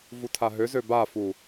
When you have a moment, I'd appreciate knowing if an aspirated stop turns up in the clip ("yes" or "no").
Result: yes